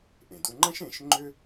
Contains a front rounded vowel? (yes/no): yes